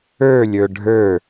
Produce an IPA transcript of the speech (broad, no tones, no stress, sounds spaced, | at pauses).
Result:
ə˞ lʲ ə˞ ɖʱ ə˞